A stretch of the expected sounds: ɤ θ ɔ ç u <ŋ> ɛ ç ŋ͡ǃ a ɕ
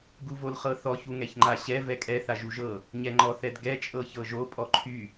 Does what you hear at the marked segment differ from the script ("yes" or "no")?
no